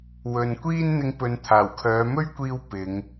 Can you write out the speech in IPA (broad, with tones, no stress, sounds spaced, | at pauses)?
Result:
w ɵ˨ n kʷ iː˥ n n̪ ɪ˧ ŋ p ɵ˨ n t̪ʰ aː˨˩ w kʰ œː˨˧ m ɵ˥ ɥ kʷ iː˧ w p ɪ˨˧ ŋ